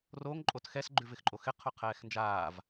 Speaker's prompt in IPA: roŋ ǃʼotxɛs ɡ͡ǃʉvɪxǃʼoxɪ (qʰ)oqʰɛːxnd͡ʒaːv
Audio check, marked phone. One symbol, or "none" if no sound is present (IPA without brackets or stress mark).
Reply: qʰ